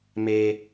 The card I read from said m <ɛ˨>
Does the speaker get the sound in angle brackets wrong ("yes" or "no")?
yes